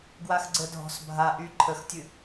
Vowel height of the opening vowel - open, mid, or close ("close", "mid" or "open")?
open